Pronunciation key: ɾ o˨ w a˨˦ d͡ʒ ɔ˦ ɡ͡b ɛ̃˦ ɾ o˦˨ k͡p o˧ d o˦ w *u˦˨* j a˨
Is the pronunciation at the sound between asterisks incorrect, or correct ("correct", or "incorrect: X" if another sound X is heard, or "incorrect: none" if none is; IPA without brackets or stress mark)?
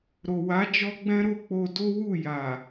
correct